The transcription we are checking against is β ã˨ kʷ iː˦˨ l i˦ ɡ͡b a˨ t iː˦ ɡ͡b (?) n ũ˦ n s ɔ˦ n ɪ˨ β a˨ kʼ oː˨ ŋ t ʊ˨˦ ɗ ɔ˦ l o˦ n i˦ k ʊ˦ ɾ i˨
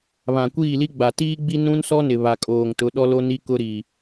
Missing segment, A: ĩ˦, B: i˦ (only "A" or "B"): B